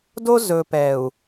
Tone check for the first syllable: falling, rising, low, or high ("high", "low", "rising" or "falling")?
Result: high